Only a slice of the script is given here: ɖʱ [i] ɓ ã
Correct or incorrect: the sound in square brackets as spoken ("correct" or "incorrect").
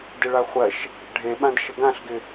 incorrect